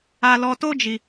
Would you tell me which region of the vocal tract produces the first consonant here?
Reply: tongue tip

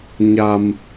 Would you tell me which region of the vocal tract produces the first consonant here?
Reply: palate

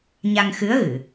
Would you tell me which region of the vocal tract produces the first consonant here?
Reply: palate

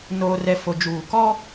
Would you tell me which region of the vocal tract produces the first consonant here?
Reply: tongue tip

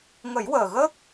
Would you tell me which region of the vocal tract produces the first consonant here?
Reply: velum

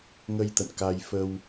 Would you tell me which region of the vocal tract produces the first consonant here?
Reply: velum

